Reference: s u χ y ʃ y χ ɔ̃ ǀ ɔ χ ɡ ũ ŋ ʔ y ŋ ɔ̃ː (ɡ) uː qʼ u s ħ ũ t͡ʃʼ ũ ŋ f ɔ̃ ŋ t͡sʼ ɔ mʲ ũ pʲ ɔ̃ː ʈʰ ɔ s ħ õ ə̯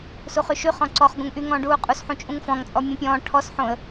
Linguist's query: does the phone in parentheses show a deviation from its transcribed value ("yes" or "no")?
yes